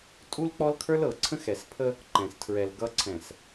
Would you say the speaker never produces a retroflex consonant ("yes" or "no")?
yes